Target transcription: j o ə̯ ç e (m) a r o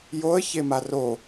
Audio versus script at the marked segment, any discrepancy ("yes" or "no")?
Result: no